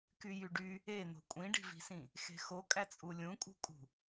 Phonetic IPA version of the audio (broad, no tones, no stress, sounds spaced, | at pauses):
k y j y ɖ y | e n̪ o̤ kʷʼ ĩ ɖ i̤ v i̤ s ĩ | x e̤ x o kʼ æ t͡sʼ u lʲ ũ kʼ ṳ kʼ ṳ